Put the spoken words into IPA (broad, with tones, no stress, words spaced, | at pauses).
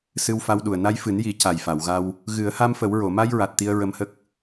sɨ˧wfa˧wɗu˨˩ə̯ na˧jfɨ˨˩˦nji˨˩˦ ca˨˩jfa˨˩˨wɣa˧w | ɣɨ˨˩˦ə̯ha˧mfə˨˩˦wɹo˨˩˨ ma˧jɹa˨˩t̚ t̪i˧ə̯ɹə˧mhə˦˥k̚